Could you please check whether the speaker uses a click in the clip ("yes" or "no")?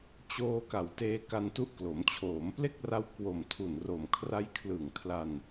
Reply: no